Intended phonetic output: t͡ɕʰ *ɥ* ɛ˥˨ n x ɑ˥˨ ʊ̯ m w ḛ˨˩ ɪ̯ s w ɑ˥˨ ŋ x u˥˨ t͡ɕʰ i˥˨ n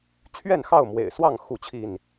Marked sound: correct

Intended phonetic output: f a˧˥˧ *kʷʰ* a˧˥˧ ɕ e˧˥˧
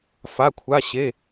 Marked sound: correct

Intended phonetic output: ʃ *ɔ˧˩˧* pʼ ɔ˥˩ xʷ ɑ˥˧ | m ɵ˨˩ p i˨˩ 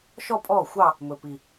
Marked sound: incorrect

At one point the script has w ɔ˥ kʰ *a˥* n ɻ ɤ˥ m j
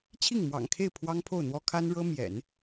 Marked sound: correct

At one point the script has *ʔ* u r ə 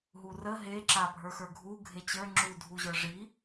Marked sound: incorrect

